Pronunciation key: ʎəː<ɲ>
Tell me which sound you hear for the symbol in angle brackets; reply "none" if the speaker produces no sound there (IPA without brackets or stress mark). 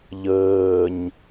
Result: ɲ